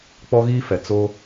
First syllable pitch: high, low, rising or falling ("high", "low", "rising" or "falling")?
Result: high